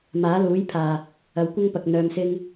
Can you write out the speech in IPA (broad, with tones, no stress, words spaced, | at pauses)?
maː˨˥luː˨˥jpʰaː˨˩ | ɐ˨wkʷɐ˥ŋpɐ˨k̚ n̪œː˨msɪ˧ŋ